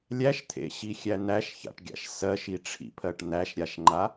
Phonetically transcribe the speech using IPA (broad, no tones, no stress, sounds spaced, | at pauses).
lʲ æ ʃ t̪ʰ ḛ ɕ i xʲ æ n̪ æ ʃ ç a̰ ʈ ɡʲ a̰ ʃ s ɜ ʃ i ʈ͡ʂʰ ḭ pʰ ɜ ʈ n̪ æ ʃ ɾʲ a ʃ ŋ͡ǃ a